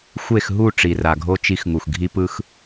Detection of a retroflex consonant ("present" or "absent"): present